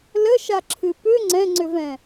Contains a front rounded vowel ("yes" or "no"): yes